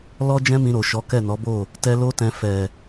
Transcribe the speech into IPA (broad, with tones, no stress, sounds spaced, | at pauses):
l ɔ˦ d͡ʒ ɛ̃˦ m ĩ˧ ɾ o˨ ʃ ɔ˨˦ k ɛ˦˨ n ɔ˨˦ b o˦˨ | t ɛ˧ l o˦ t ɛ̃˧ f ɛ˨